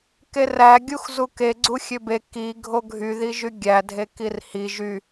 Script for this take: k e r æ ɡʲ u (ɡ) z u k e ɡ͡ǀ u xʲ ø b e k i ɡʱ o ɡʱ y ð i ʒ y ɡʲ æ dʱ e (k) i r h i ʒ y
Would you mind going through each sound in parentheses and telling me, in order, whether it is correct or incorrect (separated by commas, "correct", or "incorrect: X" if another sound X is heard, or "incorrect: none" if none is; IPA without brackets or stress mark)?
incorrect: x, correct